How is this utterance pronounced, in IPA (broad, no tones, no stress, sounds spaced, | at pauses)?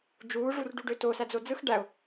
d͡ʒ uː ʐ u r ɖ u ɖ ø t o s æ d͡z o d͡z ɯ x ɖ æ ʊ̯